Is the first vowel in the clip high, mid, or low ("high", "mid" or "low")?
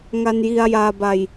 low